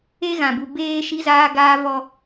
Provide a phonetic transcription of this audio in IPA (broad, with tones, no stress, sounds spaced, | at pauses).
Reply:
e˦ ɣ ã˨ b u˨ b eː˦ ʃ i˦ z aː˦ ɡ aː˦ v ɔ˦